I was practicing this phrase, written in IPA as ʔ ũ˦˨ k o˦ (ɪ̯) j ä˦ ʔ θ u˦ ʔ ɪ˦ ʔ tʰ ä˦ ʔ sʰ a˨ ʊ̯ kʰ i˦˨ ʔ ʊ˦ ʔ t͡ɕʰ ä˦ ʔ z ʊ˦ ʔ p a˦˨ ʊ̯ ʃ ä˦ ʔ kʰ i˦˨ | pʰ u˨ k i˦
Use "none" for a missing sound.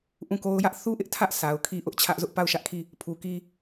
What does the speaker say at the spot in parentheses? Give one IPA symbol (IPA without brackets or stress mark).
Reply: ʊ̯